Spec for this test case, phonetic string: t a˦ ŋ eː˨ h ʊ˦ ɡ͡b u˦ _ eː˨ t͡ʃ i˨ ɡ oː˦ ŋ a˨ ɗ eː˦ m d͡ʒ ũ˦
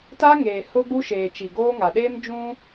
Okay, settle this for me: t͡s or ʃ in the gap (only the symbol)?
ʃ